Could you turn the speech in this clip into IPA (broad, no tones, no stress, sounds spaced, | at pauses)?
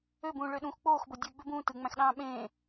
ø b ũː ɭ ø ɗ ũː x k͡p oː x b o dʲ ɯ ɡ͡b ø b ũː t ɯ ŋ͡m æ̃ x ɗ ɑ̃ː ɓ ẽː